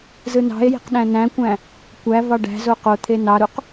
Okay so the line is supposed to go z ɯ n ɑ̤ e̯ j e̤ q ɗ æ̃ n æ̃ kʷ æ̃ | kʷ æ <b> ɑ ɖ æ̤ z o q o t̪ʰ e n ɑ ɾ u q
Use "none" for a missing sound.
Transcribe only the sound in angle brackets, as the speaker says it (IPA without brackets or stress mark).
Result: v